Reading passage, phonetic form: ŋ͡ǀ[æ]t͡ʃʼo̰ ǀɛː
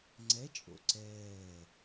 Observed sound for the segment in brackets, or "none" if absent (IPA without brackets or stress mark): ɛ